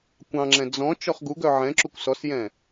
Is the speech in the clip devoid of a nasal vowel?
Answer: no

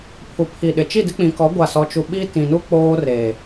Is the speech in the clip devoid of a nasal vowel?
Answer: no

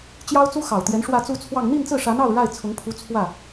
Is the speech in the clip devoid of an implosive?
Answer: yes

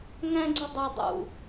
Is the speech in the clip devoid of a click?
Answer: no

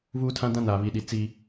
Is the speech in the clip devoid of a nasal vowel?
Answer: no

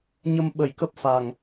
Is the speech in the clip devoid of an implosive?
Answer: no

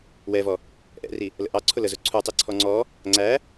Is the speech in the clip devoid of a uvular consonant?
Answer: yes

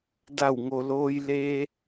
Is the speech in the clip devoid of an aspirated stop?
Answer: yes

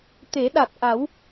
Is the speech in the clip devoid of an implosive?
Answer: no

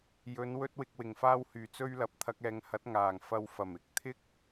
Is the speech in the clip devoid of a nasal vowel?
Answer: yes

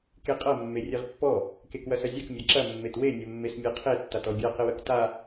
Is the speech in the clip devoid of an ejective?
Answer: no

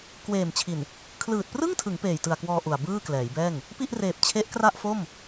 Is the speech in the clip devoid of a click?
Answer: yes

